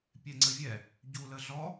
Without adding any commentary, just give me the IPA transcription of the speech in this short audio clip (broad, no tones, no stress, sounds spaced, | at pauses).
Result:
pʲ ɛ ŋ͡ǀ ə vʲ ɛ | ɟ u l ə ɮ ɔ